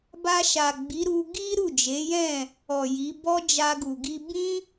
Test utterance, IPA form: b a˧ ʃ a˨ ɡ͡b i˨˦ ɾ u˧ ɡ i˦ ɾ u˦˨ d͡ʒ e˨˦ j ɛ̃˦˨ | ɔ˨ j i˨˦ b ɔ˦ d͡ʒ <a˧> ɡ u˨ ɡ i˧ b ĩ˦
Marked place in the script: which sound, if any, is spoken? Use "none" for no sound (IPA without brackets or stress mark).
a˧